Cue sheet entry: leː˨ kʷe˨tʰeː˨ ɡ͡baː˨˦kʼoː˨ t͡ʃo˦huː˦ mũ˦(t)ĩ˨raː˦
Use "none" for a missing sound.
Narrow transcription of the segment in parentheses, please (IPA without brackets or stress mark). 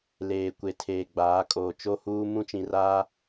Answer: t͡ʃ